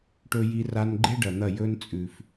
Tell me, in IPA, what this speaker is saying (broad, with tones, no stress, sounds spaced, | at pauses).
ʈ ɵ˧ j i˧ r a˧ n ɡ͡ǃ e˦ ɖ ɐ˨ n̪ ɐ˦˨ j ɵ˦ n t͡sʼ ʉ˨ f